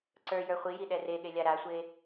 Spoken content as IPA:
ǀ ə˞ j ə˞ χʷ i j i ɗ ɛ r e ɠ e lʲ a ɾ a sʷ e

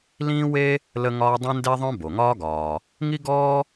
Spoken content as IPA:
l ĩː˥ w e˥ | l ə˥ ŋ ɒː˥ dˤ ɛ̃˥ n d e˥ ðˤ œ̃˥ b o˩ ŋ ɒː˥ ɡ ɒː˩ | ŋ i˥ ɡ ɔː˥

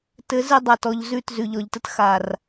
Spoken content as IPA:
t ɘ˨˦ z ɘ˧ dˤ a˨ t ɔ˨ ʎ z ʉ˦˨ t z ʉ˨ ʎ ɔ˨ ʎ t ə˦ t x a˨ r

